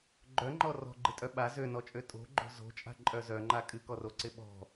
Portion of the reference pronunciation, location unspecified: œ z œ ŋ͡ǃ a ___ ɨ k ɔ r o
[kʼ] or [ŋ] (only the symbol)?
kʼ